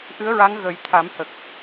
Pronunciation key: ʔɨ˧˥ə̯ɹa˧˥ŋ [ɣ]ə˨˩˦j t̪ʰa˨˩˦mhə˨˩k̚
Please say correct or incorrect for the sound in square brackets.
correct